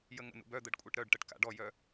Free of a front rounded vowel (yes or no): no